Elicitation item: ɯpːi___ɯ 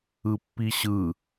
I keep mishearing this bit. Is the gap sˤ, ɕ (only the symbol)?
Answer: ɕ